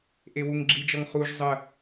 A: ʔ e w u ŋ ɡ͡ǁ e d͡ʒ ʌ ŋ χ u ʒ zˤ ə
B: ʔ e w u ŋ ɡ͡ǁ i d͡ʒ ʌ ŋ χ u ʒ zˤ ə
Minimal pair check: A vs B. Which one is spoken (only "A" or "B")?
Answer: B